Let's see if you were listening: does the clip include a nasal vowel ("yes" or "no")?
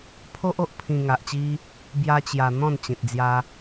yes